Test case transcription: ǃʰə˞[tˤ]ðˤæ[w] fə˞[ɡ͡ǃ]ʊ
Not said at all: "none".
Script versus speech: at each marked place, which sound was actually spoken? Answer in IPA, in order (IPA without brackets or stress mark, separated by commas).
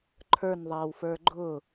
n, w, ɡ͡ǃ